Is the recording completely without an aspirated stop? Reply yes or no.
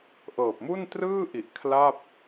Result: no